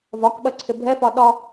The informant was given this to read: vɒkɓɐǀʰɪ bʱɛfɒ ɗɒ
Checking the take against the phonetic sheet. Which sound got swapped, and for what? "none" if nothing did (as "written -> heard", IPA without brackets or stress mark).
none